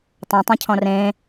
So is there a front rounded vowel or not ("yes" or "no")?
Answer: no